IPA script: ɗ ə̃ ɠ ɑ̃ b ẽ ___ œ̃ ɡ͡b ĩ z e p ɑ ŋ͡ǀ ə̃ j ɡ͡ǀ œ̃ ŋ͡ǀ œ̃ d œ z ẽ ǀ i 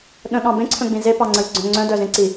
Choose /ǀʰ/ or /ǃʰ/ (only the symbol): ǀʰ